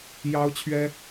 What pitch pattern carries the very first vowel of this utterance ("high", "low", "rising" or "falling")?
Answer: high